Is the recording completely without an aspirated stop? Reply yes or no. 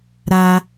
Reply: yes